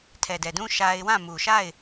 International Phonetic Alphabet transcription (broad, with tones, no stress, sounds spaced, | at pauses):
tʰ ɛ˨ d ɛ˨ d ũ˦ ʃ a˦ ɪ̯ w ã˦˨ m u˨ ʃ a˦˨ ɪ̯